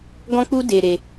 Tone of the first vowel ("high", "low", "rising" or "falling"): high